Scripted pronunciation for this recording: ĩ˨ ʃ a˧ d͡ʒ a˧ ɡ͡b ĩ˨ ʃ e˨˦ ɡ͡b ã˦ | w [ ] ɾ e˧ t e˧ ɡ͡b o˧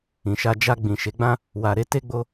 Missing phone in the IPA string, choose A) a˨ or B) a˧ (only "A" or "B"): A